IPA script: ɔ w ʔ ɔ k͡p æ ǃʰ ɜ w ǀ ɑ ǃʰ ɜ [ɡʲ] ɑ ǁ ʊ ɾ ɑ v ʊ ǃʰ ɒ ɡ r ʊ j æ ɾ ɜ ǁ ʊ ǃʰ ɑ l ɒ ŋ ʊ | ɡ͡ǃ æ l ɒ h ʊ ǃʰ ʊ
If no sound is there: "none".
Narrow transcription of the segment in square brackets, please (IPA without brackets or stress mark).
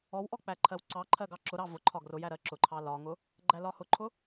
ɡ